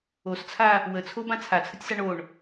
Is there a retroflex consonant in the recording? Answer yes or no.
yes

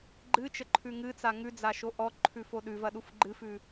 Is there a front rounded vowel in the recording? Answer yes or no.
no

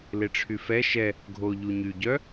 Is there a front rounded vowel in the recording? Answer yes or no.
yes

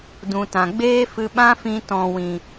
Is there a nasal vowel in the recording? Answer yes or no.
yes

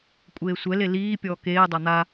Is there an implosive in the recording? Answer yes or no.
no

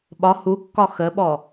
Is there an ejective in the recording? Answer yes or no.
no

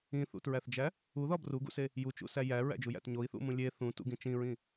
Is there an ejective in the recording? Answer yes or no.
no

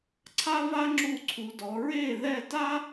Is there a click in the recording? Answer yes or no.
yes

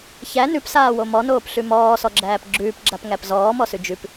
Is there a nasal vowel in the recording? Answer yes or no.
no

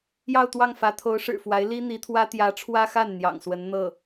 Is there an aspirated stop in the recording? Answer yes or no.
yes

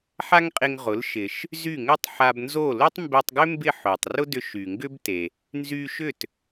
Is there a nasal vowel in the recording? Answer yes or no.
no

